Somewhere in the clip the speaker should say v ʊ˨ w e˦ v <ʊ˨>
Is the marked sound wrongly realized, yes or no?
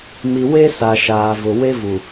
yes